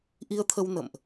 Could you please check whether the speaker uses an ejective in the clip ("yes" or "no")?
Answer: no